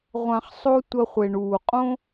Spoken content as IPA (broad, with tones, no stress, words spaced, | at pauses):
ʁʷã˨χsˤo˧ tʷɐ˧χʷe˨ɳuː˨ qʼõ˦